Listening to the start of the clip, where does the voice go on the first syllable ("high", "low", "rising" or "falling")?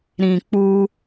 low